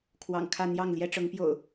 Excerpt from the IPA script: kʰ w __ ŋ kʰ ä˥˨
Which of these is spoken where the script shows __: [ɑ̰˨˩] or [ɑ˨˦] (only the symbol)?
ɑ̰˨˩